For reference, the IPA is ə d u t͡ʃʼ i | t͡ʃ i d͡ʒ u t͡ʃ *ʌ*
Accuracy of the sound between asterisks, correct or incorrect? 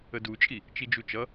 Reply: correct